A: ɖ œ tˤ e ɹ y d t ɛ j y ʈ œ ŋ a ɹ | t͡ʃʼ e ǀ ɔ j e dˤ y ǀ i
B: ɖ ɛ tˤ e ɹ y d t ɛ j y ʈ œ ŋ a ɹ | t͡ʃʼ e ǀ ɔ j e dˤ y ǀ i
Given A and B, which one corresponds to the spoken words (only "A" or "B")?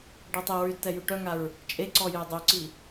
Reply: B